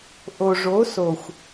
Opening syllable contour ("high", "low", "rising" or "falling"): low